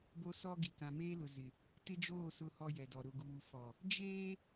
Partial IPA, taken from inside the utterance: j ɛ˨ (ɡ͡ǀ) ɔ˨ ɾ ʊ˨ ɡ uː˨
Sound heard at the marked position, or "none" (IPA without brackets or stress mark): d